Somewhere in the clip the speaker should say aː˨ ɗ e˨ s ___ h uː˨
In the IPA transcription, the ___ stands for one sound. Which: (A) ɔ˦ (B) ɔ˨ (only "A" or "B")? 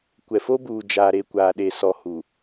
B